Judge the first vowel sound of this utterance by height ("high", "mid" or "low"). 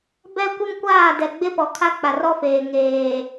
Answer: mid